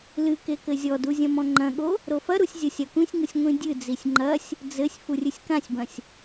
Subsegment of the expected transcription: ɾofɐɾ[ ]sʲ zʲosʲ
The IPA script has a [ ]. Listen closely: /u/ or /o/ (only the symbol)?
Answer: u